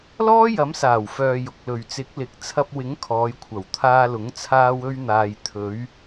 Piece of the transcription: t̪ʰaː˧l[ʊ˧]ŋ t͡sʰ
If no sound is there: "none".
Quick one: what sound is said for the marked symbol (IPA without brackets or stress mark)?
ʊ˨˥